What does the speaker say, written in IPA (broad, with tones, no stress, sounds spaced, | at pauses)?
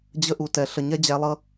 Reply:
d͡ʑ ə˧ ʔ u˨ t ɛ˨ ɬ ə˨ ɲ ɛ˦ d͡ʑ æ˧ lˠ ʌ˦